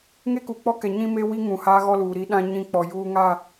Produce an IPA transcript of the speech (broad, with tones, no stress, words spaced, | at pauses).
ŋe˦ku˨k͡pɔ˦kɛ˨ ɲĩ˦me˦wi˦ ŋũ˨haː˦ɣɔ˦luː˨ ɾi˦ɗã˦ɲĩ˦˨k͡pɔ˨ juː˦ ŋa˦˨